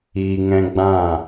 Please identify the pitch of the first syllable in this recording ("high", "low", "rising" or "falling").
low